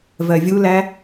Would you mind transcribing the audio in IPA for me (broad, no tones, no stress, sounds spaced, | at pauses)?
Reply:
v ɜ vʲ u l æ